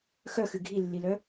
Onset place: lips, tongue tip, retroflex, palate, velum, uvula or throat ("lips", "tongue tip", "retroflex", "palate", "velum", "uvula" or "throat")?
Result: velum